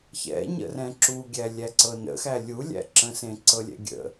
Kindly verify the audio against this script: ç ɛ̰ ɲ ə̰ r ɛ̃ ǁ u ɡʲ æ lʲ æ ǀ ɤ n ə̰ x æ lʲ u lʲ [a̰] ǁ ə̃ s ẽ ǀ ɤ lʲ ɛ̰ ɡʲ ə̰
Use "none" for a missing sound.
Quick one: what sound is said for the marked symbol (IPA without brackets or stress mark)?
æ̰